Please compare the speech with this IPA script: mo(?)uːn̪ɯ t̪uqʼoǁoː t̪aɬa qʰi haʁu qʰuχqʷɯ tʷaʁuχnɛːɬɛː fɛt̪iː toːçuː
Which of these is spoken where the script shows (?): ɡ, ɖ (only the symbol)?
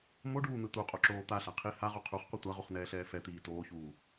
ɖ